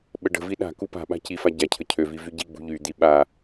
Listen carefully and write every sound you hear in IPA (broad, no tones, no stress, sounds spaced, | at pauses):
ɓ ə ɖ ə̤ v i ɗ a̤ k u p a̤ ɓ a̤ c i f a ɟ a cʰ ə cʰ ø v i v y ɟ i ɡ͡b ṳ ʎ y d̪ i ɓ a